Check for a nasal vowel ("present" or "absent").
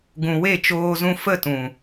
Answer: present